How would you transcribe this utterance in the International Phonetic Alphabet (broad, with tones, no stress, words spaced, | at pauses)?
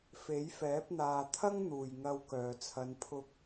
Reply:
fe˨˥jfɛː˨˥p̚ n̪aː˨t̪ʰɐ˥ŋn̪uː˨˩j ŋɐ˧w kœː˨˩t͡sʰɐ˨˧npʰʊ˧k̚